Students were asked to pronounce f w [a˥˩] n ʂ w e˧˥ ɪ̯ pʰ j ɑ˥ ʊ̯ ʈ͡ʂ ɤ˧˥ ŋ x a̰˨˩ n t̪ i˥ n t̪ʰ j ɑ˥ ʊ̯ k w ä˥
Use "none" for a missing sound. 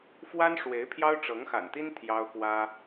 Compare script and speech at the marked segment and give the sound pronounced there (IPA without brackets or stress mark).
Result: a˥